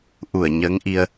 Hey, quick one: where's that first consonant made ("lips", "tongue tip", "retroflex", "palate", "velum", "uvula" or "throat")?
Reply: throat